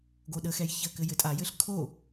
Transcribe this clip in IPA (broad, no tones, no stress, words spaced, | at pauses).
ɡoɗəxɛj çəkɘ jɘtʼajɘɬ kʰo